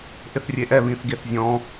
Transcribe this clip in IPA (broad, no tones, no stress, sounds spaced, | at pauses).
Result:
ʔ ɪ θ rʲ e ʔ ɛ β ĩ θ ɡ e θ zʲ ɔ̃